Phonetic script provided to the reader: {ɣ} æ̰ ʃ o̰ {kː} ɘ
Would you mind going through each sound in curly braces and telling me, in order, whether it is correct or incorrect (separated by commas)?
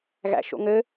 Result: correct, incorrect